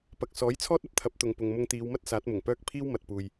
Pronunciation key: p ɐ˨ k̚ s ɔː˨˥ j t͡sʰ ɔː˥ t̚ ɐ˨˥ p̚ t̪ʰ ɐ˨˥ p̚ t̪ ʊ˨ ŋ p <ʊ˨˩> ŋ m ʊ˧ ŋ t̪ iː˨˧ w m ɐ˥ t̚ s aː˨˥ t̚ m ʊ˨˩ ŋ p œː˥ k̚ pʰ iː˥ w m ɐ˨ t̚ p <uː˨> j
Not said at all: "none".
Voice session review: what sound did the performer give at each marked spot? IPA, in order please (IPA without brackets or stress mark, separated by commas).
ʊ˨, uː˨